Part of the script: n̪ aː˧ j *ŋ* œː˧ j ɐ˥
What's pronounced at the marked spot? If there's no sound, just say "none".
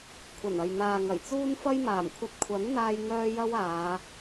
ŋ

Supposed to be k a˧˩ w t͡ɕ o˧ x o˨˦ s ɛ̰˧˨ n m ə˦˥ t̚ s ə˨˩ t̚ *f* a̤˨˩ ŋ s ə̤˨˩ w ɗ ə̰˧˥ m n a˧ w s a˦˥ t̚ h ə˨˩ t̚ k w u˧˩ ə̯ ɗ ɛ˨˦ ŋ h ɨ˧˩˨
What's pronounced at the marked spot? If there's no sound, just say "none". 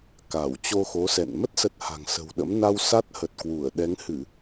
h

